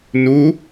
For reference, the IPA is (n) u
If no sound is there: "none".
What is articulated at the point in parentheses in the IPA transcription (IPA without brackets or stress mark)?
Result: n